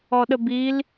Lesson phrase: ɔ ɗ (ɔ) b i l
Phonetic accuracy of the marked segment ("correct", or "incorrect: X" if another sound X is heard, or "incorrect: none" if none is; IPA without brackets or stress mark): incorrect: ə